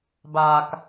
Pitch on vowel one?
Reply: low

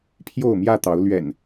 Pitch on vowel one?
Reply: falling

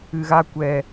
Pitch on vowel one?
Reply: low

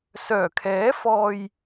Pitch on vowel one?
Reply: low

